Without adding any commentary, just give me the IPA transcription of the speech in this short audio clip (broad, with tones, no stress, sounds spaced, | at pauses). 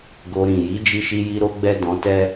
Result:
ɡ o˧ ɾ ĩ˨ j i˨˦ d͡ʒ i˦ ʃ i˦ j i˦ ɾ o˦ ɡ͡b ɛ˦ d ɔ̃˧ t ɛ˦